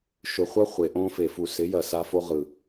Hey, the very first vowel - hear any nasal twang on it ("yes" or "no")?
no